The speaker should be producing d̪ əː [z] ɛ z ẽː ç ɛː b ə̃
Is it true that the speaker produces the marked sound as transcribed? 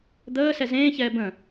no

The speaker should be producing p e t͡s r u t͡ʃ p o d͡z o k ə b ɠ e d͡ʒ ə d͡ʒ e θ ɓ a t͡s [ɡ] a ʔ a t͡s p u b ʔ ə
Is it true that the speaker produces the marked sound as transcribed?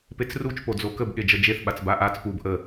no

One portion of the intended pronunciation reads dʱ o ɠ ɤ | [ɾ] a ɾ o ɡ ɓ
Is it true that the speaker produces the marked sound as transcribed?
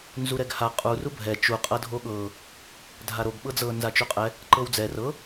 no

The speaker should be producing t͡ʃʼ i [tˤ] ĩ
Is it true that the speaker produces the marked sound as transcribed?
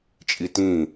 no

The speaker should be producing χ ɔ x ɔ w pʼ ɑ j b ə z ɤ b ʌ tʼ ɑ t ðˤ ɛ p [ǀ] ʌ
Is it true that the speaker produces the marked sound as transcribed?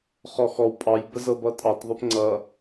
no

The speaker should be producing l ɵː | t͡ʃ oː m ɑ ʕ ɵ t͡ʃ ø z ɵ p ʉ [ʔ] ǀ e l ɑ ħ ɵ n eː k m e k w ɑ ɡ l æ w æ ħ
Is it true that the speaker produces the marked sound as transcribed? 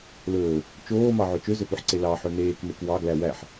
no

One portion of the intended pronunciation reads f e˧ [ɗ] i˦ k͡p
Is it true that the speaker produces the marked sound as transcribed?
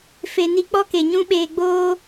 no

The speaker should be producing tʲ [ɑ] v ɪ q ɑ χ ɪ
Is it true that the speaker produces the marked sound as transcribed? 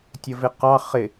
no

